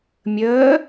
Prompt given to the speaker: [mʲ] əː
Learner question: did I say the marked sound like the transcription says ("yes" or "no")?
yes